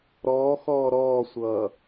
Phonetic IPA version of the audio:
ɾ ɔː x ɔː ɾ ɔː sʷ ʌː

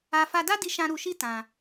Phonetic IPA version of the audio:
a˧ f a˧ d a˦ d i˧ ʃ ã˧ ɾ u˧ ʃ i˦ t ã˧

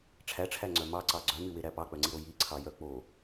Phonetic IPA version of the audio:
ʈ͡ʂʰ æ ʈ͡ʂʰ æ ŋ͡ǀ œ m ɑ ǀ ɑ ɡ͡ǀ œ m y w e ɾ æ p ɑ k͡p œ ŋ͡ǀ i ɾ o j i ǀʰ ɑ j œ k͡p o

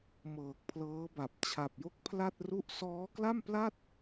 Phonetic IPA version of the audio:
m ɤː˨˩ k̚ pʰ l ɤː˦˥ b a˨˩ p̚ t͡ɕʰ a˨˩ p̚ j o˦˥ k̚ pʰ l a˥˩ t̚ r u˥˩ ʔ s ɔː˦˥ k l a˥˩ m p l a˥˩ t̚

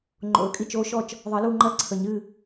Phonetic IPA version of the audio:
ŋ͡ǃ o̰˨˩˦ ə̯ kʼ i˥˨ t͡ʃ o˨˦ ʃ ɔ˥˨ t͡ʃ | ðˤ ɜ˨˩˦ l u˥˨ ŋ͡ǃ ɜ˥˨ ǀʰ ə˨˩˦ ɲ ɨ˥˨

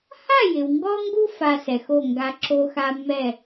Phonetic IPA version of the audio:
h a˥˨ j ɪ˨ w ŋ ɡ ɔ˦ ŋ ɡ u˦ f a˦ s ɛ˨ x o˥˨ ŋ ɡ a˦ ǁ o˦ x a˦ mː ɛ˥˨

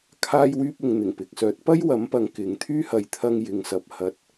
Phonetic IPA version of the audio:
kʰ aː˥ j w yː˥ p̚ ʊ˨ ŋ n̪ ɪ˨˩ ŋ p ɪ˨ k̚ s œː˨˥ t̚ p ɐ˥ j w ɐ˨˥ m p ɐ˨˧ ŋ k ɪ˨ ŋ t̪ʰ yː˥ h ɐ˨˧ j t̪ʰ ɐ˧ ŋ j ɪ˨ ŋ s ɐ˨ p̚ h ɐ˨ t̚

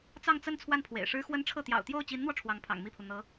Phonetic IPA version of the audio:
t͡s ɑ˥˧ ŋ t͡s ə˥˧ n t͡sʰ w a˥˩ n pʰ w ḛ˨˩ ɪ̯ ʂ ɻ̩˥ x w ə˥ n ʈ͡ʂʰ ɤ˥˩ t̪ j ɑ̰˨˩ ʊ̯ t̪ j o˥˩ ʊ̯ t͡ɕ i˧˥ n n̪ w ɔ˧ ʈ͡ʂʰ w ɑ˧˥ ŋ pʰ ɑ̰˨˩ ŋ m i˥˩ pʰ u˩ n̪ ɤ˧˥

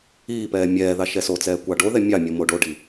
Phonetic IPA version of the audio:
iː p ɛː mʲ ɛː ð ɑ ʃ ɛ s o t͡s ɛː kʷ ɑ ɖ o ð ɛ mʲ ɑ mʲ o m o ɖ o ɖ i

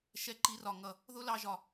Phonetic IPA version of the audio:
ʃ ɛ˧ ǃ i˨˦ r ɒ˨ ŋ ʌ˨ | ð ʊ˦ l ɑ˧ ʒ ɒ˨

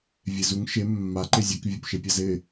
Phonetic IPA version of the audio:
vʲ e z u ŋ ʃ e mː a ǃ e zʲ e k vʲ o p ʃ e pʲ a z ɪ

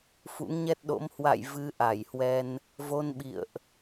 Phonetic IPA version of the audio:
f ṵ˧˥ ŋ ɲ ɛ˦˥ t̚ ɗ o̰˧˥ m h w a̰˧˨ j v ɨ˨˦ ʔ a˧˩ j h w ɛ˧ n | v o˧ n ɓ ḭ˧˨ ə̯ ʔ

